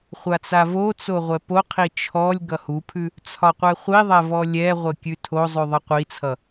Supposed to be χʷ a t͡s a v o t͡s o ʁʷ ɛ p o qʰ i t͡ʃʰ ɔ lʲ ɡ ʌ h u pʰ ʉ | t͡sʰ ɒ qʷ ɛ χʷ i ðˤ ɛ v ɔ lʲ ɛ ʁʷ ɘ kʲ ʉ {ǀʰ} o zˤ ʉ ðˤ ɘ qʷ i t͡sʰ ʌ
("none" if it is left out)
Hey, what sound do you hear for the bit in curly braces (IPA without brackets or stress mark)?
tʰ